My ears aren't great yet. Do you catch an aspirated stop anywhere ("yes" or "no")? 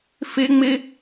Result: no